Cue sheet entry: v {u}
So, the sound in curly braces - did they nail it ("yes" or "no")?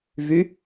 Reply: no